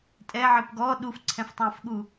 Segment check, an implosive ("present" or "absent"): present